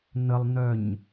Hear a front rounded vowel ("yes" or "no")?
yes